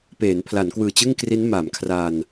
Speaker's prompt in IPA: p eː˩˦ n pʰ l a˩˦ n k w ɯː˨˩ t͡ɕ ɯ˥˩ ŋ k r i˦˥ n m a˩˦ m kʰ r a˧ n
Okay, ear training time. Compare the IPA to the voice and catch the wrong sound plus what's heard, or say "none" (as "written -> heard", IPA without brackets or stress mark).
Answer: none